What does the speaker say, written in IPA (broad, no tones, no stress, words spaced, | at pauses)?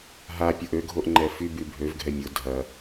ɦapʲʊ ʔøɡʱoʔŋ͡ǃɛ fyby bʱøvɡʱɛ mʲʊ dʱɐ